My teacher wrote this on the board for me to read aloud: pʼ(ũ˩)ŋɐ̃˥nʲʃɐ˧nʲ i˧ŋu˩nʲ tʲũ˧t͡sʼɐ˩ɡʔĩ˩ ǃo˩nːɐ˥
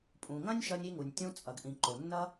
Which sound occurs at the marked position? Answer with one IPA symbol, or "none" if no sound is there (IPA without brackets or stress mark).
ũ˩